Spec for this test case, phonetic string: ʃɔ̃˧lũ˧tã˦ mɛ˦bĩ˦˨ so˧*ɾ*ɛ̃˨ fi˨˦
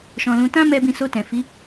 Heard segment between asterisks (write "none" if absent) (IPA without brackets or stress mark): t